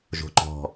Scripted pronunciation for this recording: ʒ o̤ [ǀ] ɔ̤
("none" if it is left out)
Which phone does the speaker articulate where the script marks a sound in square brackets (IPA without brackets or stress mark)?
ǃ